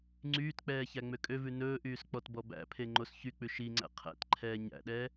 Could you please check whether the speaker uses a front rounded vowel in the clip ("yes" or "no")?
yes